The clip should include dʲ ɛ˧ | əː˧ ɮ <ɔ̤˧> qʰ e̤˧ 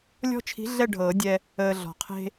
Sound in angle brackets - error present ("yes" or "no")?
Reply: yes